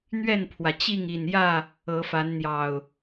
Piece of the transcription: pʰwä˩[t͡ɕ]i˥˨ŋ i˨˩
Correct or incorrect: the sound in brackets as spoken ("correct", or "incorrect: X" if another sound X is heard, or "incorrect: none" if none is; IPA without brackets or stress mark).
correct